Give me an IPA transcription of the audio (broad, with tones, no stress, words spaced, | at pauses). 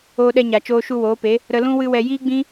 oː˧ɗɛ˧ɲa˨ t͡ʃoː˧ʃu˧woː˨˦pe˨˦ | ɾə˧lũ˦ wɨ˦wɛ˧ jiː˦ɡ͡bĩ˦